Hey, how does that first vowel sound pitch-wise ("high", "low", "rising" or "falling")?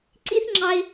high